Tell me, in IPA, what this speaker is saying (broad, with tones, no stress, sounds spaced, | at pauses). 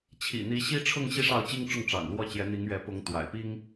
t͡ɕʰ ḭ˨˩ n̪ i˧˥ ɕ i˥ ʈ͡ʂʰ ʊ˥˧ ŋ ɕ i˥˧ ʂ ɑ˥˩ ʊ̯ t͡ɕ i˥ ŋ ʈ͡ʂ ʊ˥˩ ŋ ʈ͡ʂ ɑ̰˨˩ ŋ l w ɔ˥˩ t͡ɕ j ɛ˧˥ n̪ i˧˥ ŋ ɥ ɛ˧˥ p ʊ˧˥ ŋ t̪ w a̰˨˩ ɪ̯ p i˥ ŋ